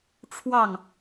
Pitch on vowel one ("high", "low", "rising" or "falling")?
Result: falling